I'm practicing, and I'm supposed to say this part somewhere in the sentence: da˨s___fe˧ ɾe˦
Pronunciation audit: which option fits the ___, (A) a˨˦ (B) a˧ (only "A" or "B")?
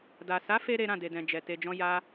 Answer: A